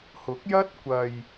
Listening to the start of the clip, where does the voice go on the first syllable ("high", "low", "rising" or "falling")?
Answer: rising